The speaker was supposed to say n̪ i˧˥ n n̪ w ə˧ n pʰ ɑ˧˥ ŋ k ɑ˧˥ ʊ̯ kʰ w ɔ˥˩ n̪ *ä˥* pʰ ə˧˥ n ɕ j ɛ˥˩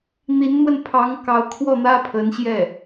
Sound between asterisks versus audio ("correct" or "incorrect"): correct